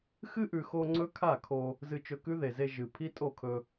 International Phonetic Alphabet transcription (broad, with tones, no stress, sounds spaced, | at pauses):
x ɨ˦ ʔ ʉ˨ x o˧ ŋ͡ǀ ɵ˦ kʰ a˦˨ kʰ o˧ | z ɨ˧ t͡ʃ ɵ˧ k ʉ˦ ð e˨ z e˧ ʒ ɨ˨ pʰ i˦ tʼ o˦˨ kʰ ɵ˧